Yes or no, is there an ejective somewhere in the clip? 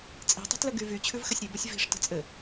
yes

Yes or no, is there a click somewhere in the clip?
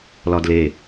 no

